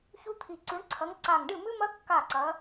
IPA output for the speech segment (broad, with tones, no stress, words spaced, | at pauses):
çu˦˥t̪ʰi˧˩ǀʉ˨˥ɳǀʰɐ˨˥ŋ ǀa˧˩ŋɖɨ˥˩mɨ˦˥mɐ˦˥ kːa˥˩ǀɐ˨˥